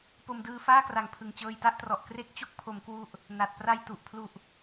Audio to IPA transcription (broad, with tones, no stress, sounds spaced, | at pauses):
p o˧ m d ɯː˧ f aː˥˩ k r a˨˩ ŋ pʰ ɯ˨˩ ŋ t͡ɕ ɤː˧ j t a˦˥ ʔ t r ɔ˨˩ ʔ k r e˦˥ k̚ t͡ɕ o˦˥ k̚ pʰ o˩˦ m k w u˥˩ ʔ | n a˨˩ t̚ p r a˧ j t u˨˩ ʔ pʰ l u˨˩ ʔ